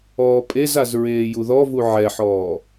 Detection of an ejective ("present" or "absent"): present